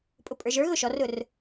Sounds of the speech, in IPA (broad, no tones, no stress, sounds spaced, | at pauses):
pʼ ʊ pʼ ə˞ ʒ ə˞ ɣ ʊ ʃ ɔ r ʊ r